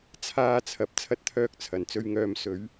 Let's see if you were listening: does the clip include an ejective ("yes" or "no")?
no